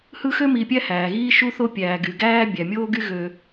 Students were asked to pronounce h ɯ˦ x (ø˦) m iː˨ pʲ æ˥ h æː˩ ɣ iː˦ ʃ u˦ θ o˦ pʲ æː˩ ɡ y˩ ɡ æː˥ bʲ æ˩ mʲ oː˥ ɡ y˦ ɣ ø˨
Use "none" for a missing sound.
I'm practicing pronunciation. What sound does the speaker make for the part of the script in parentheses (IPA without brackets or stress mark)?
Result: ø˥